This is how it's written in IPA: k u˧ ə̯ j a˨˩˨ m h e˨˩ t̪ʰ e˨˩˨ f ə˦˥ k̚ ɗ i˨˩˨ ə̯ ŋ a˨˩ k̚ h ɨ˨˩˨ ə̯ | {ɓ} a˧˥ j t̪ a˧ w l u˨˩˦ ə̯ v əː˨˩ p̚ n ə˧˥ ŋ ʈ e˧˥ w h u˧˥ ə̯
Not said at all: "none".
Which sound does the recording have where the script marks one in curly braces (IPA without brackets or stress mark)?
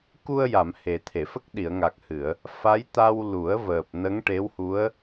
f